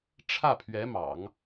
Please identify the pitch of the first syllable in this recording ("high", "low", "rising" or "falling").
falling